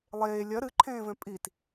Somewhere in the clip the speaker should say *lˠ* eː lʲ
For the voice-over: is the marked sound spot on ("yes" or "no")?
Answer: yes